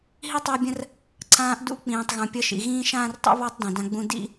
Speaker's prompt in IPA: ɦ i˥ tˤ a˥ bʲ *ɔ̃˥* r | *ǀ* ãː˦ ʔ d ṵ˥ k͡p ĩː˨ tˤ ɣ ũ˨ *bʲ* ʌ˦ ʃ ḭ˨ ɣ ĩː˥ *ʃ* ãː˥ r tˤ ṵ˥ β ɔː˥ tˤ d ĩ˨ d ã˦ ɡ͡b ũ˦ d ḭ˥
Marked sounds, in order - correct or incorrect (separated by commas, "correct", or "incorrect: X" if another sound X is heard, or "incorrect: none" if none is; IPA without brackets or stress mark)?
incorrect: ə̃˥, correct, incorrect: pʲ, correct